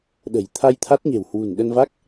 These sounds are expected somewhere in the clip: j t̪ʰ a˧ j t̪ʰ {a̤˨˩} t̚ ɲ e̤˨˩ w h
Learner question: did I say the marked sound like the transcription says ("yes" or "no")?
no